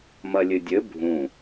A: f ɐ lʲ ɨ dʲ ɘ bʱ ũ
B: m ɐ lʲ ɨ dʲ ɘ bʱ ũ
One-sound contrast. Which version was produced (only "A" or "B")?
B